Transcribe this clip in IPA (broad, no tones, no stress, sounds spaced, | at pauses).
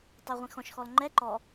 tˤ ə˞ ʁʷ ĩ x ɔ̃ ʃ x ɔ l ŋ͡ǃ ɛ ǃ ɔ